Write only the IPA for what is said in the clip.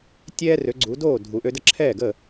tʲ ɛː˥ r ø˩˥ ɡ͡ǀ u˩˥ d oː˥˩ dʱ u˩ ʔ ø˧ d ə˥˩ ǁʰ ɛː˥˩ ɡ ə˥˩

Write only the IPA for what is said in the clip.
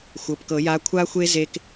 xʷ ɤ˩˧˩ p k ɤ˨˩˦ j a˧˥ kʷʰ a˥ xʷ e˥ z e˥ k

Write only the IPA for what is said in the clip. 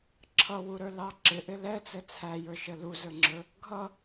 ǁʰ ʌ w u ɾ ə˞ l ɑ ǁ ɪ ʔ ɪ l ɛ t͡s ɛ t͡sʰ æ j ə˞ ʃ ə l u z ə˞ ŋ͡ǁ ə˞ | ɡʱ ʌ

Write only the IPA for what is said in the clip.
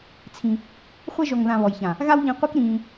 t͡sʰ ĩ˧ | χʷ ɛ˧ ʒ ɔ˨ ŋ ð ã˨ β ɔ˨ j ç ã˨ | ɣ a˦ w ʎ ĩ˧ qʷ i˦ k ɾ ĩː˧

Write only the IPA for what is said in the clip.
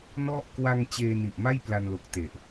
n ɔ˥˩ ʔ k w a˧ ŋ t͡ɕ eː˧ n i˨˩ ʔ m a˥˩ j p l a˧ n l o˨˩ k̚ t e˨˩ ʔ

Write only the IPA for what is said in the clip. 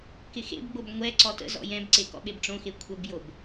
k ɪ x ḛ b ɡ͡b o b ŋʷ ɛ ǀ ɔ t ə̰ z ɔ̰ j ɛ̃ b ǀ e k ɔ̰ ɓ e b ʈ͡ʂ õ x e kʷʰ ə b j o b

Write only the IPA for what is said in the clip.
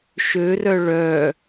ʃ ø r œ ɭ œ

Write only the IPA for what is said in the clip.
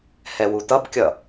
h ɛ w u t ʌ b kʲ ʌ

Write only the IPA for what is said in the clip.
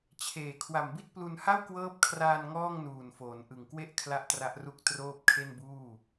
t͡ɕʰ eː˨˩ kʰ w a˨˩ m b i˥˩ t̚ p l u˧ n h a˥˩ w k w ɤː˦˥ p̚ kʰ r aː˧ n ŋ ɔː˥˩ ŋ n uː˨˩ n f oː˩˦ n ʔ ɯ˨˩ ŋ k w e˥˩ ʔ kʰ l a˥˩ ʔ t r a˦˥ ʔ r u˥˩ k̚ t r oː˥˩ p̚ kʰ e˥˩ n b uː˥˩

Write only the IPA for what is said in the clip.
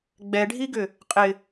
ɡ͡b ɛ ɖʱ i ɡ ʏ | qʼ ɪ

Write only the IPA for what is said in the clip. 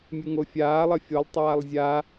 mʲ ɨ ŋ o fʲ aː lˠ ɐ fʲ o lˠ tˤ aː lˠ zʲ a

